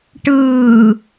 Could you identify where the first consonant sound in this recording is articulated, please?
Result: retroflex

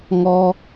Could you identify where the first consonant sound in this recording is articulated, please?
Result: velar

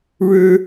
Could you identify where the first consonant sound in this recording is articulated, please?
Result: retroflex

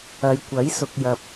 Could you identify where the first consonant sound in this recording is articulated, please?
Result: palatal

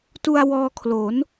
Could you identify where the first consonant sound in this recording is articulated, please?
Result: alveolar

